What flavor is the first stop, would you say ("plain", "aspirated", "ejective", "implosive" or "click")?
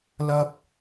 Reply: plain